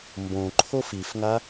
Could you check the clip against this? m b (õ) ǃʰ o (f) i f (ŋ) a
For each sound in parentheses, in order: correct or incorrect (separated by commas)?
correct, correct, correct